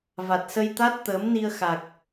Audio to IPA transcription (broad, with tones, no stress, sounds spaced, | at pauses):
v a˨˩ t̚ s ə˧ j t̪ a˦˥ t̚ t̪ əː˨˦ m n i˧ ə̯ x a˨˩ k̚